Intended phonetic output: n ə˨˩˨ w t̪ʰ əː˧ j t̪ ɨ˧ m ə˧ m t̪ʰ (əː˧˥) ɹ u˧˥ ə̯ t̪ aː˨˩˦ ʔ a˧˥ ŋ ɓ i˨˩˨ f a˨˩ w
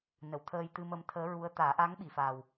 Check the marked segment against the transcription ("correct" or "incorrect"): correct